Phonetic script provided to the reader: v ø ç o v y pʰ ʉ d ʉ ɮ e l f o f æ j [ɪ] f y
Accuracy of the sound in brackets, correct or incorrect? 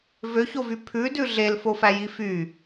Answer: incorrect